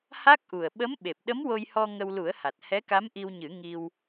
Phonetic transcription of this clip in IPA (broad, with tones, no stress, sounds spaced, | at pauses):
h a˦˥ k̚ ʔ u˨˩ ə̯ ɓ ə˧˥ m ɓ e˨˩ p̚ ɗ ə˧˥ m w o˧ j h ɔ˧ ŋ ə˧ w l u˨˩˦ ə̯ h a˨˩ t̚ h ɛ˧˥ k a˧˥ m ʔ i˧ w ɲ ɨ˨˩˦ ŋ i˧ w